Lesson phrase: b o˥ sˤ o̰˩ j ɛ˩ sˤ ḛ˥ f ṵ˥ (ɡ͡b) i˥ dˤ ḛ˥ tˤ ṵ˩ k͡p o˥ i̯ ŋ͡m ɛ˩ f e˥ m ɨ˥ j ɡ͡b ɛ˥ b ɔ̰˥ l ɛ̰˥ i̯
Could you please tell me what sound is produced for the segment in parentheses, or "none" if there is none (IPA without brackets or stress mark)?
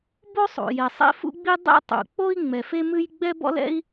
ɡ͡b